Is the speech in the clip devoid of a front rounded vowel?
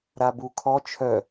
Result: no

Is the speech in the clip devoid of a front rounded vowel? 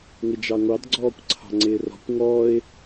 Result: yes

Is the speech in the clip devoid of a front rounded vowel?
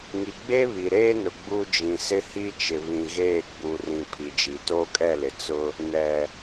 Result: yes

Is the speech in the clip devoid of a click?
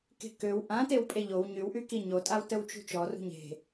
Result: yes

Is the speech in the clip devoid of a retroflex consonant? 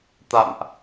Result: yes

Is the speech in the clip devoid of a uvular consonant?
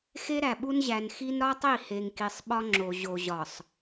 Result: yes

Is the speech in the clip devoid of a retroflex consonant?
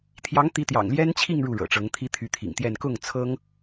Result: no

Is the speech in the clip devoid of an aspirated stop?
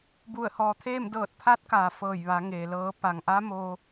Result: no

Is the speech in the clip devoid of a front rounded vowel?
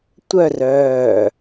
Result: no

